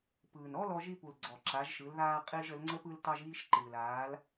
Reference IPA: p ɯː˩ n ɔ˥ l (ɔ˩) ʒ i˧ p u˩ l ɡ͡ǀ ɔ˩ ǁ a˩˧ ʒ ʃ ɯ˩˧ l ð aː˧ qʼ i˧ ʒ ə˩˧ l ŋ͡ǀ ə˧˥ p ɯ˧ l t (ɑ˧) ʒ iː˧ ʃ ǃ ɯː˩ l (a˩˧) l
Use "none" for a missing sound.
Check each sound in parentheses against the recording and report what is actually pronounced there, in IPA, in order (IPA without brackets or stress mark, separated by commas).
ɔ˧, ɑ˧, aː˩˧